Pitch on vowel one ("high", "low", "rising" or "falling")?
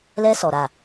high